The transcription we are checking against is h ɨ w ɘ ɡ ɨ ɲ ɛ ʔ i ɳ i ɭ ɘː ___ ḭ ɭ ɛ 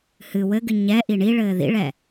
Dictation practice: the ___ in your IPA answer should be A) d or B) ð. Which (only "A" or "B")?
B